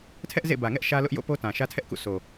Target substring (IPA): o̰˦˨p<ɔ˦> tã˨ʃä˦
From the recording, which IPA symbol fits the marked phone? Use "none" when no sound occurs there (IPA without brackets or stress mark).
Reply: o˦